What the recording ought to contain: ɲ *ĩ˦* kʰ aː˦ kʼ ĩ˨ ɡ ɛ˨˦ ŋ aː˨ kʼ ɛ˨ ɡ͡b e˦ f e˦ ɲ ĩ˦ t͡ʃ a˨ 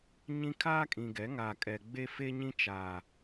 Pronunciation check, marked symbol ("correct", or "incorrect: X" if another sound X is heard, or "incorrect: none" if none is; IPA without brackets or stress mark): correct